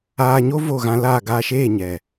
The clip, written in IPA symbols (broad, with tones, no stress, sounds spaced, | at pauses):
aː˧ ɲ o˦ v o˦˨ ɣ ã˧ l aː˦˨ ɡ aː˧ ʃ eː˦˨ ɲ ɛ˨